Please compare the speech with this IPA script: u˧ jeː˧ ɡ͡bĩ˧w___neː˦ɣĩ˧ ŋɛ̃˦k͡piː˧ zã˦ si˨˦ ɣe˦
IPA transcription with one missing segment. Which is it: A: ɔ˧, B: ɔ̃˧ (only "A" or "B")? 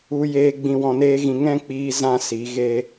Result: B